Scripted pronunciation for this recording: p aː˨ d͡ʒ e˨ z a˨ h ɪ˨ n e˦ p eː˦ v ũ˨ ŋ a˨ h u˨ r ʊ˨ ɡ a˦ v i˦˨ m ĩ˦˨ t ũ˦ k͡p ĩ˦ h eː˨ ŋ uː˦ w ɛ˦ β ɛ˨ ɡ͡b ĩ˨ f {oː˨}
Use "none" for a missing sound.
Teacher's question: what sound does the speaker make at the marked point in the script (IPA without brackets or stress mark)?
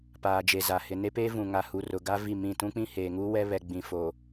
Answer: oː˨